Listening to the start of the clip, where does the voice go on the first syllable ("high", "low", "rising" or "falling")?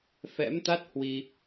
rising